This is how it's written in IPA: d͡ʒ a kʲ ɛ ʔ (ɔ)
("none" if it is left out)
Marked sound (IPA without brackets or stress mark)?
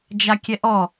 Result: ɔ